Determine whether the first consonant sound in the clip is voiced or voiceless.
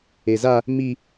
voiced